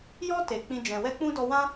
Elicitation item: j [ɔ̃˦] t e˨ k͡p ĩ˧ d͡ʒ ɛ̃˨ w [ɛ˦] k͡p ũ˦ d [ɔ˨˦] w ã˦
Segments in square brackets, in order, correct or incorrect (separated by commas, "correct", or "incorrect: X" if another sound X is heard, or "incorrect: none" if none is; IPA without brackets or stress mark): incorrect: ɔ˦, correct, incorrect: ɔ˧